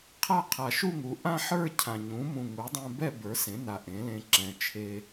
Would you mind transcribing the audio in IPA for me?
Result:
qʰ a˥˧ qʰ a˨˩ ʃ u˥˧ ŋ u˩˥ ʔ ã˥˧ ħ ə˞˥˧ cʰ ã˨˩ ɲ ũ˩˥ m ũ˨˩ ŋ u˩˥ dˤ ɛ̃˧ b ɛ˥˧ b ə˞˩˥ s ẽ˩˥ n a˨˩ ʔ ẽ˩˥ l ẽ˧ ǁ ɛ̃˨˩ t͡ʃʰ e˧

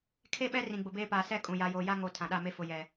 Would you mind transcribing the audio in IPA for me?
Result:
kʰ e˦ ɓ ɛ˦ r ĩ˨ ɡ͡b ʊ˨ b eː˦ p aː˨ s ɛ˦ kʼ ũ˨ j a˨ j oː˨ j a˦ ŋ o˨ tʰ ã˨ ɗ a˦˨ m e˦ f ʊ˨ j ɛ˨

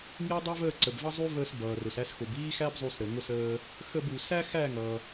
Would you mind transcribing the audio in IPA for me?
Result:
ŋ i˥ dˤ ə˞˥ v əː˥˨ ǀ ə˩ b v ʌ˥ zˤ u˥ v əː˧ s b ʌː˩ r ʊ˩ s æ˧ s x ʊ˩ b iː˥ x æ˥ b zˤ u˧ s ɾ ə˩ ŋ ʊ˧ s əː˧ | x ə˥˨ b u˩ s æ˥ x æ˥˨ ŋ ʌ˩

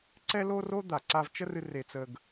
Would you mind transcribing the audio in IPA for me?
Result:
ǀ ɛ˥ l o˥ r o˥ d̪ a˩ ǀ a˧ v t͡ʃ ə˥ r ɨ˧ r e˧ t͡s ə˧ ɡ

